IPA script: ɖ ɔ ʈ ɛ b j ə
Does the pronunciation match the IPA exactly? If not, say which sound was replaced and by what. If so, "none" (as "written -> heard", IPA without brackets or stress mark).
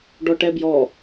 ə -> ɔ